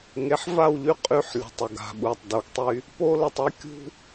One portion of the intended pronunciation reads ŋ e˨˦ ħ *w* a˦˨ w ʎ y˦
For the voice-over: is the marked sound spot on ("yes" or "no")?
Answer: no